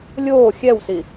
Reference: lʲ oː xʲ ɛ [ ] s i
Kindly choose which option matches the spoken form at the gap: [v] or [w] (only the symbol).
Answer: w